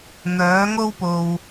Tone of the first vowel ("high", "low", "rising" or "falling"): rising